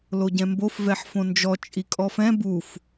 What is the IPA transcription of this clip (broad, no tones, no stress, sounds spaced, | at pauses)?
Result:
l o ɟ ɛ̃ m b o f v ɛ ħ f õ n d͡ʒ ɔ t͡ʃʼ i kʼ ɔ f ɛ̃ b u f